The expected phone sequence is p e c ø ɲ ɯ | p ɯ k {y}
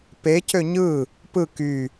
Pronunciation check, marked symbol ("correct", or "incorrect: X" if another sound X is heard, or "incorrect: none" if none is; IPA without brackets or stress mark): correct